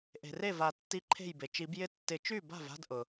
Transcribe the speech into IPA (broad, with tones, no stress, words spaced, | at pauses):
ʔe̤˩re˥˩va˨˩˦ tːi˧˥ǃʰe̤˥˩jbe˩ t͡ʃi˨˩˦bjɪ˥˩ tːɪ˨˩˦t͡ʃy˥˩ba̤˥˩va̤˥˧d ʔʊ˩